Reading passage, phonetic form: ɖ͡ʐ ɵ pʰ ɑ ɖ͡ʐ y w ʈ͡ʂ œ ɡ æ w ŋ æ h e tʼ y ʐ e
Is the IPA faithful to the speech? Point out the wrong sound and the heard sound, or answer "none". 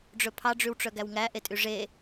h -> ʔ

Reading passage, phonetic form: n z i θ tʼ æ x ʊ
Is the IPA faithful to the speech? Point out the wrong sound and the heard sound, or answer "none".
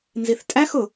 none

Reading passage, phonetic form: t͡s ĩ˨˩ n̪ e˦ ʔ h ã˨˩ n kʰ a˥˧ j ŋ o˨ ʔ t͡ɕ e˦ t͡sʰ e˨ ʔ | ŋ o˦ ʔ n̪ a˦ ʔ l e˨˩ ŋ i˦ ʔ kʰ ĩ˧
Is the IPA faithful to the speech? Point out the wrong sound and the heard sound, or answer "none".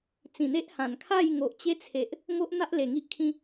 none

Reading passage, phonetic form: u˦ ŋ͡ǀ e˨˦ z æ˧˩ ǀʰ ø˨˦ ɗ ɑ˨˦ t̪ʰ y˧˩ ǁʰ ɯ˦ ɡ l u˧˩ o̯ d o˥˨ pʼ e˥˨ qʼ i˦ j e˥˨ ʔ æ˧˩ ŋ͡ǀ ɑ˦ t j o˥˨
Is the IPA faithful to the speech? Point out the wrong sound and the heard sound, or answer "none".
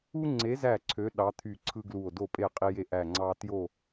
ǁʰ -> ǀʰ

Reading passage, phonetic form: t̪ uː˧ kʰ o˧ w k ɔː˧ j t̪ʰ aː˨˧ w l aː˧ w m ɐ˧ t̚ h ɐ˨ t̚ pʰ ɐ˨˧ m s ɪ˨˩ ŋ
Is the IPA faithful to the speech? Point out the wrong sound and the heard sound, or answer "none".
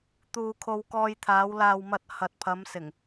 none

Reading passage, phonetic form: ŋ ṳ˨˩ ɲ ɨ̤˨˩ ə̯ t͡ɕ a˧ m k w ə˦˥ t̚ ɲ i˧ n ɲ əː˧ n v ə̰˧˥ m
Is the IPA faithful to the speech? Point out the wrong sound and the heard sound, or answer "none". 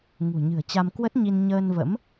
none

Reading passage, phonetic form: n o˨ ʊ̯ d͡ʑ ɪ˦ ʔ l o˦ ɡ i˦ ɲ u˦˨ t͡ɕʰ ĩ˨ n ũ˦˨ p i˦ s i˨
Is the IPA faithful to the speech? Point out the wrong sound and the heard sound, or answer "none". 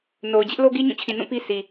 u˦˨ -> ũ˦˨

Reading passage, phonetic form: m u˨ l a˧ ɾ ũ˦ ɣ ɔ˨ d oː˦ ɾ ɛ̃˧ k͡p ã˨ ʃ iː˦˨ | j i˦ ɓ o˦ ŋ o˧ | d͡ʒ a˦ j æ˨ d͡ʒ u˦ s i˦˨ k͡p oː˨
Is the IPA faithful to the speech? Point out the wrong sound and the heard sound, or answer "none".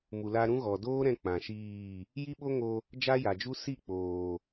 æ˨ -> a˨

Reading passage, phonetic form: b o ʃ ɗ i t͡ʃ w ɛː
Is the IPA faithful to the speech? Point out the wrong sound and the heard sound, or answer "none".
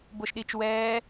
none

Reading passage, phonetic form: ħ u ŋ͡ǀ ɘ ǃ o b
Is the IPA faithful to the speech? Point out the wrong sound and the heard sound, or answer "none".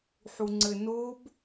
ǃ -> n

